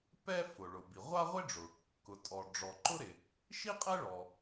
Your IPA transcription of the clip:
p ɛ˥ f ʊ˩ ɭ ʊ˩ b i˩ ʁʷ a˥ ʁʷ ɪ˥ ɖ͡ʐ ʊ˩ | k ʊ˩ tʼ ɔ˩ ɖ͡ʐ ɔ˩ ǃ ʊ˥ ɾ ɪ˩ | ʃ i˥ qʼ ɛ˥ ɭ ɔ˩

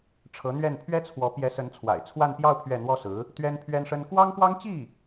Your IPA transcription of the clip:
ʈ͡ʂʰ ɤ˧˥ n̪ ɥ ɛ˥˩ n pʰ ɥ ɛ˥ t͡sʰ w ɔ˧˥ p j ɛ˧˥ s ə˧˥ n t͡sʰ w a̰˨˩ ɪ̯ t͡sʰ w a˥˧ n p j ɑ˥˧ ʊ̯ pʰ ɥ ɛ˥˩ n̪ w ɔ˥ s ɹ̩˧˥ | t̪ ɥ ɛ˥ n pʰ ɥ ɛ˥ n ʂ ə˥ n k w ɑ˥ ŋ p w ɑ˥ ŋ t͡ɕ i˥˩

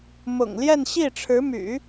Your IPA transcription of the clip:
m ʊ̰˨˩ ŋ l j ɛ˥˧ n ɕ i˥˩ ʈ͡ʂʰ ɻ̩˧˥ m y̰˨˩˦

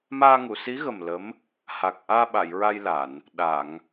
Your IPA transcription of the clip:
m aː˧ ŋ u˨˩˨ s i˧˥ ɣ ə˨˩ m l ə˧˥ m | h a˨˩ k̚ ʔ aː˧ ɓ a˨˩˨ j ɹ a˧ j l a˨˩˨ n | ɗ a˨˩˨ ŋ

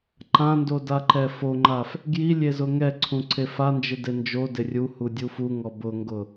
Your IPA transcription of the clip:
ǃ ã n d o d a ǃ ɛ f o ŋ͡ǃ a f | ɡ j i lʲ e z ʊ ŋ ɛ ǀʰ ũ ǀʰ e f a n d͡ʒ ɪ d e n d͡ʒ o d ɪ rʲ u h u dʲ u f u ŋ ɔ b ʊ ŋ ɡ ʊ

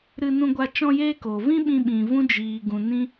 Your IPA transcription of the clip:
ɾ ɨ˧ n ũ˧ ɡʷ a˧ t͡ʃ ɔ̃˧ j eː˦ k o˨ v ĩ˦ ɓ ĩ˦ ɓ ĩ˧ v ũ˦ d͡ʒ iː˨ ɡ ũ˨ n ĩ˦

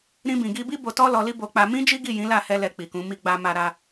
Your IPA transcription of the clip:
ɾ ĩ˧ b ĩ˨ ɡ i˧ b i˦ b o˧ t ɔ˦ l ɔ˧ l i˦ b o˧ k͡p a˧ m ĩ˦ d͡ʒ i˦ ɡ i˦˨ j ĩ˨˦ l a˦˨ h ɛ˧ l ɛ˧ k͡p i˨ k ũ˨˦ m i˧ ɡ͡b a˧ m a˧ ɾ a˧

